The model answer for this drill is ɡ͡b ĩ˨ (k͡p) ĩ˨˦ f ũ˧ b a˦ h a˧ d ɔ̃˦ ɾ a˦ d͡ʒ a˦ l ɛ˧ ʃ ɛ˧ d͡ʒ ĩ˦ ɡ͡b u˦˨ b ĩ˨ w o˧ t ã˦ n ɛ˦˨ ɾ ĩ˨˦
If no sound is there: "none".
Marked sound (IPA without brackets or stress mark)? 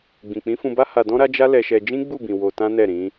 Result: k͡p